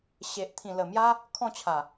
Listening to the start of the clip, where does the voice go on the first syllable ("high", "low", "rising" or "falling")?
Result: low